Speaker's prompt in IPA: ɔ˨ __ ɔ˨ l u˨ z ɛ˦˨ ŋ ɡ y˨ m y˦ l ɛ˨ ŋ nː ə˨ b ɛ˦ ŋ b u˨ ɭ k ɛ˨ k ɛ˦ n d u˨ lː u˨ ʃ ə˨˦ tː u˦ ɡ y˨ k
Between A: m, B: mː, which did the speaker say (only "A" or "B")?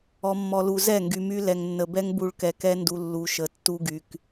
B